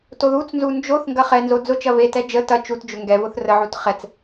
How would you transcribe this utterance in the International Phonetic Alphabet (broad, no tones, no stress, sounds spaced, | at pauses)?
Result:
t o ð u t͡s n z u n d͡ʒ o θ ŋ ɡ ɐ χ ɛ n z o d͡z ʊ t͡ʃ ɐ v e t ɛ d͡ʒ ə t ɐ t͡ʃ u t d͡ʒ ʊ ŋ ɡ ɛ v ʊ θ r ə ʕ u t χ ɛ t͡s